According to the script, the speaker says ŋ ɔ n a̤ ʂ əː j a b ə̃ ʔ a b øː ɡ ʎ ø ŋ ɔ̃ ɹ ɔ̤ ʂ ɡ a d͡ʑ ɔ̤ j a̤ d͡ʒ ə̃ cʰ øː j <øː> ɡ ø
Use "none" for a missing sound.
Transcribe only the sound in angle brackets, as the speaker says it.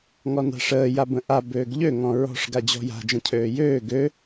øː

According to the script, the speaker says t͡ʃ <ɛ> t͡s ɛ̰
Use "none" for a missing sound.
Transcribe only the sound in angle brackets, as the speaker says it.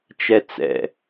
ɛ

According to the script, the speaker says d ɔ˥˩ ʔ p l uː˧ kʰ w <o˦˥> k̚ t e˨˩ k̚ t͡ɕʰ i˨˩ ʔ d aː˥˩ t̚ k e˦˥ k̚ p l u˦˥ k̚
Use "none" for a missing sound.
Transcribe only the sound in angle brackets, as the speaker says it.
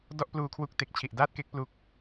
u˦˥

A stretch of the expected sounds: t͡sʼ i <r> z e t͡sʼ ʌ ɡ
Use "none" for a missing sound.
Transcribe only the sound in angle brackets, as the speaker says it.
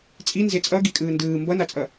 n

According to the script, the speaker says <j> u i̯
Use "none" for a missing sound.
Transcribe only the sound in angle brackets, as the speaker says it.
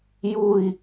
j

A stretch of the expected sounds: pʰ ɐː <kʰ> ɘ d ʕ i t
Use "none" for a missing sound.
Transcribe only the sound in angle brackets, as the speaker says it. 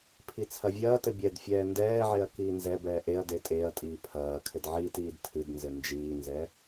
kʰ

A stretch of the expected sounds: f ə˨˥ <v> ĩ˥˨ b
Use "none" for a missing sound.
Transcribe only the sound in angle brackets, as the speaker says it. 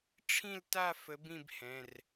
b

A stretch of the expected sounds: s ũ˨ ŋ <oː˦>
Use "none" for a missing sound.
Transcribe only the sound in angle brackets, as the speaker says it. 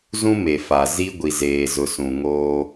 oː˦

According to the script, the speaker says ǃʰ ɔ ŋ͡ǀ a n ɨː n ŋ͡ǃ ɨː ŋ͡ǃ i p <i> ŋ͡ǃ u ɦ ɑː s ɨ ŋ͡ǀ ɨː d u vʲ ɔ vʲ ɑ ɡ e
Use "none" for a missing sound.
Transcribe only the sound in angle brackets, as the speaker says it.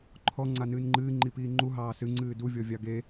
iː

